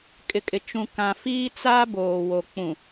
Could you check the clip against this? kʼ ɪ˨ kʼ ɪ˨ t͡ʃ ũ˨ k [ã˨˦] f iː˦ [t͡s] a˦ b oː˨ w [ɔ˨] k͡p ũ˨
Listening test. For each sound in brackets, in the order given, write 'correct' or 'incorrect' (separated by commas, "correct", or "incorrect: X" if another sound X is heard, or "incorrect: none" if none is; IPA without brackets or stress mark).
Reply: incorrect: ã˨, correct, incorrect: o˨